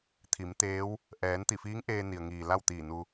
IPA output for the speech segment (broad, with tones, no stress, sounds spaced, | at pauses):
t̪ʰ i˩˧ m t̪ eː˧˥ w | ʔ ɛː˩˧ n t̪ i˧˩ f iː˧˥ ŋ ʔ eː˧ n i˩ ə̯ ŋ iː˩ l a˥˨ w t̪ iː˧˩ n u˧